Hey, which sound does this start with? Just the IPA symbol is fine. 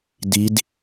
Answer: d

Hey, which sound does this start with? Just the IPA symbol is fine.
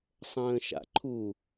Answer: sˤ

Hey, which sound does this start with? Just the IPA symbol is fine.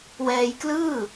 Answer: w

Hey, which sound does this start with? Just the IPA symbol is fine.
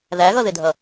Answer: ð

